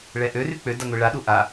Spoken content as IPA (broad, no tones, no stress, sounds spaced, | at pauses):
ɭ ɛ ʔ ø r y k͡p ø d a ŋʷ i ɭ a ɗ u ʔ a